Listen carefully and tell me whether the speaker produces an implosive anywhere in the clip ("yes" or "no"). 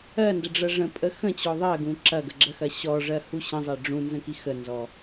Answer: no